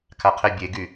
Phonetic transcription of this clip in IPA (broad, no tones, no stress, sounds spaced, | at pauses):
kʰ a qʰ e bʲ e ɡ y